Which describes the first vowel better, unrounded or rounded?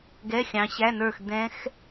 unrounded